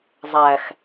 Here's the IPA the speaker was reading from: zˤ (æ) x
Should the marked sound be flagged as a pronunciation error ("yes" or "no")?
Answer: no